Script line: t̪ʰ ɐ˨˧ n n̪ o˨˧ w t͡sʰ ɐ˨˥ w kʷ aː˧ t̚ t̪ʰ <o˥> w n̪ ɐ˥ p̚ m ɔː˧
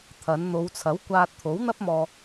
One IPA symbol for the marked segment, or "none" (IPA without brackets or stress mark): o˨˥